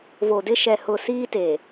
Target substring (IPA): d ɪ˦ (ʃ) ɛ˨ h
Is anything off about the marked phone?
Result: no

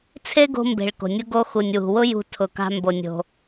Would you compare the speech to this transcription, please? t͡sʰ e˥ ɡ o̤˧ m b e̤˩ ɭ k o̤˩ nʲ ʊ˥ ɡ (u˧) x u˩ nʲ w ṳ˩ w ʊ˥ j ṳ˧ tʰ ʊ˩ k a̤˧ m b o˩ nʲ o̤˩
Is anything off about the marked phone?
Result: yes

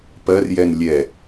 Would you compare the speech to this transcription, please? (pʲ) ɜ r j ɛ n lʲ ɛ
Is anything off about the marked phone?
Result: yes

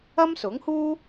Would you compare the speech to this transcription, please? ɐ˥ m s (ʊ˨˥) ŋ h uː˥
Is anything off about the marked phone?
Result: no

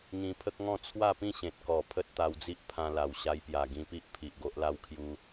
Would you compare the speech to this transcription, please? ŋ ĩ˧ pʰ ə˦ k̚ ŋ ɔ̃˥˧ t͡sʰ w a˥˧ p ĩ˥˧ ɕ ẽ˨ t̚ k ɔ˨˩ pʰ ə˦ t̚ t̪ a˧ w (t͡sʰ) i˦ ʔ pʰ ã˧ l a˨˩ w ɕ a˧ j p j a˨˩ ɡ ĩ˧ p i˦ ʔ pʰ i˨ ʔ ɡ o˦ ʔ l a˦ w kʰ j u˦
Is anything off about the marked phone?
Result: yes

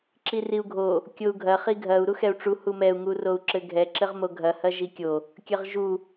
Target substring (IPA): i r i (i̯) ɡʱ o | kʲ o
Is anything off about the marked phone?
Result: yes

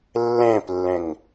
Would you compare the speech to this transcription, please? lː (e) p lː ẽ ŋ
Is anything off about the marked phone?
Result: yes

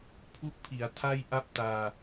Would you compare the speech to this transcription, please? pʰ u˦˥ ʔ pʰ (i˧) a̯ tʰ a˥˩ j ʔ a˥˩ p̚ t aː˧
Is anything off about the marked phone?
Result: yes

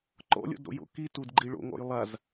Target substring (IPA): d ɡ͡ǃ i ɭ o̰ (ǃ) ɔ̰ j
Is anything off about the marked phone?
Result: yes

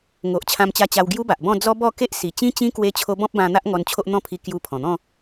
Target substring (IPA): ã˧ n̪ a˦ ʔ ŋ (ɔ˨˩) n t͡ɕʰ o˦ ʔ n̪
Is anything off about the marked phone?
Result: yes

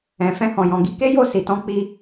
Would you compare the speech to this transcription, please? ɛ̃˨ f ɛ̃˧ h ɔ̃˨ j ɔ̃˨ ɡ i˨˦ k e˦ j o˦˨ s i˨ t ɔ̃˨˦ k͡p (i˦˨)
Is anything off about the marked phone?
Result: yes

